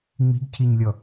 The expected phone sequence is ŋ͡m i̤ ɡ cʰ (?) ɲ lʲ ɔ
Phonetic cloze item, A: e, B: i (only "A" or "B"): B